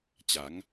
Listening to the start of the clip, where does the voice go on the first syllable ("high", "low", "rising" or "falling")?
rising